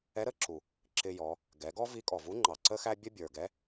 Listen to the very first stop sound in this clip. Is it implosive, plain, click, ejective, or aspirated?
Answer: click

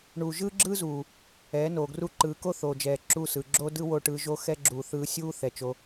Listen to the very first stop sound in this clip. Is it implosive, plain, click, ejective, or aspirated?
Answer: click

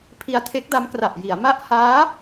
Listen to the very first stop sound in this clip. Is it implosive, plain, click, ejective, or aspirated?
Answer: aspirated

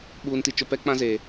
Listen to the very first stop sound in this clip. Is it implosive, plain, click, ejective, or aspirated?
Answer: implosive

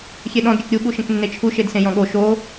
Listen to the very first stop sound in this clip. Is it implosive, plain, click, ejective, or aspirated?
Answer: implosive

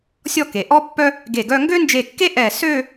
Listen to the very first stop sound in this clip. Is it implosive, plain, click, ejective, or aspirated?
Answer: plain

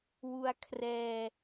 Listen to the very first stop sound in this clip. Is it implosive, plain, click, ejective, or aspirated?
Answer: aspirated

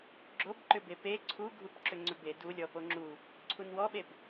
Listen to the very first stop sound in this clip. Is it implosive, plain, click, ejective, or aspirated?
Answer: click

